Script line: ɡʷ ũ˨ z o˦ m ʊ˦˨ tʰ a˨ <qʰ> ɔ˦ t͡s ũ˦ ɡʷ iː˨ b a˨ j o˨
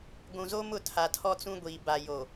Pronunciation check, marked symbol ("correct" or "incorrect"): incorrect